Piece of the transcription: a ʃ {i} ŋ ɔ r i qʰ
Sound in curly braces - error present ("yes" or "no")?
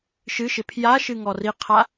yes